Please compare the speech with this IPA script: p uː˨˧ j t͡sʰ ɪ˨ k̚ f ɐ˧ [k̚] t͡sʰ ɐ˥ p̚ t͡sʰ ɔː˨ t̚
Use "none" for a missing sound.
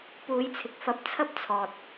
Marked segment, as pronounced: p̚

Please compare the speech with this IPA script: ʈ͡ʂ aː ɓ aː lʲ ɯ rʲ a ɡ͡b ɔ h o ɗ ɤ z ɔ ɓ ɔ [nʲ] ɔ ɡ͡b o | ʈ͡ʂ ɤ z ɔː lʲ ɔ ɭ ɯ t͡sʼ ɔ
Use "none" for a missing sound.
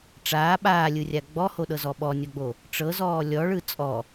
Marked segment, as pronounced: nʲ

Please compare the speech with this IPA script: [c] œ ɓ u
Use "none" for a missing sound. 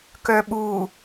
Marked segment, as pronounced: k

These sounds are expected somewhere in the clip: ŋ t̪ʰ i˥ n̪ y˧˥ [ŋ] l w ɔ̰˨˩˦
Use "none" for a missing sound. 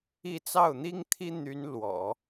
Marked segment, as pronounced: n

